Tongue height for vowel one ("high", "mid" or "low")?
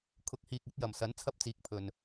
high